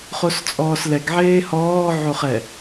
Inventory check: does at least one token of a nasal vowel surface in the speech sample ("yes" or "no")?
no